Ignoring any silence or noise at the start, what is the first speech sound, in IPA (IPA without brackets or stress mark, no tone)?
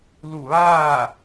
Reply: l